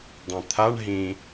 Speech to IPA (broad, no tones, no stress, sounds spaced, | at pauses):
dˤ ĩ t̪ʰ a ɳ ɦ ĩ